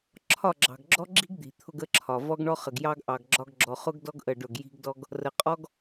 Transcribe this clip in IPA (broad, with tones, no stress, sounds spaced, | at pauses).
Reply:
ǁʰ ɒ˦˨ ɡ͡ǁ ɑ̤˨ ɡ ɡ͡ǁ ɔ˦ ɡ͡ǁ i̤˦ ɡ d̪ i̤˨ t̪ʰ ʊ˦ ɡ ə˦ ǁʰ ɒ˨ v ɔ˦ ɡ ɳ ɔ˦ χ ə˨ ɡ j ɑ˦ ɡ ʔ ɑ˨ ɡ ɡ͡ǁ ɒ˦ ɡ ɡ͡ǁ ɔ˨ χ ʊ˦ ɡ d ɔ˦ ɡ ʔ ə˦˨ ɖ ʊ˦˨ ɡ j i̤˦ ɡ d ɔ˦ ɡ | r ə˨ qʼ ɔ˦ ɡ